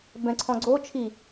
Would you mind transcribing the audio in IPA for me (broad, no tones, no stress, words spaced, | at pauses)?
bɛ̃ǀʰɔ̃ɡ͡ǀo t͡ʃʰi